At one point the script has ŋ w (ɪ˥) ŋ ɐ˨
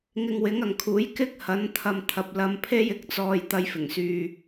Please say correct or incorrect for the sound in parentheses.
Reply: incorrect